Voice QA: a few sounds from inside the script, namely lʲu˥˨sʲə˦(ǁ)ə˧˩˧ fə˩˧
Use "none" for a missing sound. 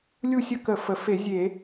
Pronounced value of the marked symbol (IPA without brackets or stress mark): k